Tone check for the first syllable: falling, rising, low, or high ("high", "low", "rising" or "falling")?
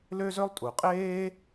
high